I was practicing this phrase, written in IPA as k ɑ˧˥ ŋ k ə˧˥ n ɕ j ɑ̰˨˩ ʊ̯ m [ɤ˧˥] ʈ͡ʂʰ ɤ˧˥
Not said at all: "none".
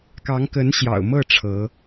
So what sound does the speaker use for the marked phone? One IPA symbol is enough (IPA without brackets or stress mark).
ɤ˥˩